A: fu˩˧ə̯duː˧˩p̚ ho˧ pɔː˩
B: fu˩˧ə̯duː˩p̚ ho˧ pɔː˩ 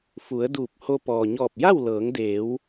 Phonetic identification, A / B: A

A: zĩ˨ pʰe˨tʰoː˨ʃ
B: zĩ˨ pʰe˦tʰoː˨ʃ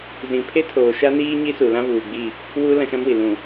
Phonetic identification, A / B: B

